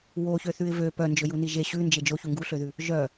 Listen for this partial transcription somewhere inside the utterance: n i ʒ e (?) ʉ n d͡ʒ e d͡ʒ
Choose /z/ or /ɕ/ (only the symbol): ɕ